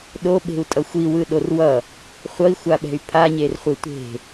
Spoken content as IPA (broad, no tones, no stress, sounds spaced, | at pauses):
ɗ o ɓ e̤ u̯ tʼ ʌ xʷ i w ɯ ɗ o r w ʌ | χʷ ʌ i̯ xʷ a ɓ ɛ̤ y̯ pʰ a ɲ e r χʷ e tʷ e̤